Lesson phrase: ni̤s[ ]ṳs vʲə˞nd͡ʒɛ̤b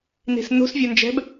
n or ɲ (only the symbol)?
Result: n